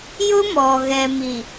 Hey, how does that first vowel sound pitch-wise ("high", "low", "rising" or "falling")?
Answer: high